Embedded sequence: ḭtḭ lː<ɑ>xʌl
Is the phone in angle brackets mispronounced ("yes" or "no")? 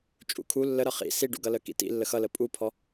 yes